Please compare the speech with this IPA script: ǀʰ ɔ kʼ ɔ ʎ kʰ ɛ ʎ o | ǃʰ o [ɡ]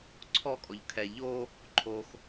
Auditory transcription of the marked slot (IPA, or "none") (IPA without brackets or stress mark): x